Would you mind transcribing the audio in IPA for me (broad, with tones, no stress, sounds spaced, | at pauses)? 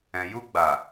ɛ̃˨ j u˧ ɡ͡b a˨